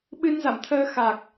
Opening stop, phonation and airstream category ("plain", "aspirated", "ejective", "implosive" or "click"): implosive